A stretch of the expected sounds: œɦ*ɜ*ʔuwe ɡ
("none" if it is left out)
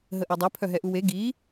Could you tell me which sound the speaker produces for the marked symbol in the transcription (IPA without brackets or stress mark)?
ɛ